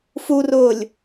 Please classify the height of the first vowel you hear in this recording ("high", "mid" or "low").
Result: high